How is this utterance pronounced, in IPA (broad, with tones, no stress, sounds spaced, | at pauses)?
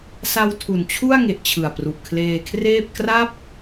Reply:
s a˧ w tʰ u˨˩ n t͡ɕʰ u˥˩ a̯ ŋ e˨˩ ʔ t͡ɕʰ ɯ˨˩ a̯ p r u˨˩ ʔ kʰ l eː˧ kʰ r eː˥˩ p̚ k r a˥˩ p̚